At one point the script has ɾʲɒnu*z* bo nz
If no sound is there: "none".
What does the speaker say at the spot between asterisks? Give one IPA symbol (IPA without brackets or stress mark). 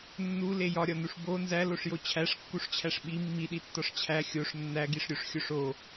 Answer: ʂ